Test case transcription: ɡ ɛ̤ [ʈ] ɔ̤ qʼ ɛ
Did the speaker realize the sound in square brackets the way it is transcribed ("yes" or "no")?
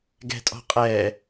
no